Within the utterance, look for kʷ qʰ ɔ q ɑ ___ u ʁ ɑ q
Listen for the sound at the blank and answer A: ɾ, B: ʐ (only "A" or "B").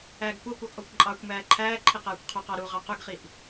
A